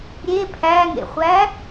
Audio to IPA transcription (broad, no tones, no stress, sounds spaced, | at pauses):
ɾʲ e pʰ æ ŋ ḛ χʷ æ